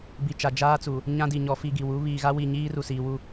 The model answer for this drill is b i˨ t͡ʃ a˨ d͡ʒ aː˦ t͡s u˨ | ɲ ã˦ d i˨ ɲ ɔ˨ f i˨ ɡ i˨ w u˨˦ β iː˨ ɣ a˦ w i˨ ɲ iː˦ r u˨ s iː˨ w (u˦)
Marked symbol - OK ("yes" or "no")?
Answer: yes